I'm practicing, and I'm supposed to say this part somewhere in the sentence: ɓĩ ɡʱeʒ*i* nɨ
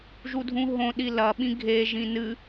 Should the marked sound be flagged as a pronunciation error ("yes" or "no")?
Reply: yes